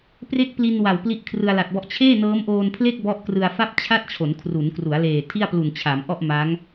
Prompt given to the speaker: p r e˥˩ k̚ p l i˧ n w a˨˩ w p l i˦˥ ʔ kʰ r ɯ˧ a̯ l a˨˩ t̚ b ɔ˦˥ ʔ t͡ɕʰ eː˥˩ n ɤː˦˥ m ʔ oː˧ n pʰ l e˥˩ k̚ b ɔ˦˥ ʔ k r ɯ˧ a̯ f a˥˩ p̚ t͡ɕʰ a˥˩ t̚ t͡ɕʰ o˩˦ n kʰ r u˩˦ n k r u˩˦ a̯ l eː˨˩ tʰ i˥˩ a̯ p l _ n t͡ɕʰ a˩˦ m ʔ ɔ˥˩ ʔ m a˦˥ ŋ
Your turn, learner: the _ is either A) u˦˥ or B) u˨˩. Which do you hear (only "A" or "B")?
B